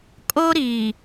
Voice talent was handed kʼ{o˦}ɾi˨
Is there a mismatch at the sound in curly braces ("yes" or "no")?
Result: no